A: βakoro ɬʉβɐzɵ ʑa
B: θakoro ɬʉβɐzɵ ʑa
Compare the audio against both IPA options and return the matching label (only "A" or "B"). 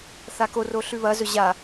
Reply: B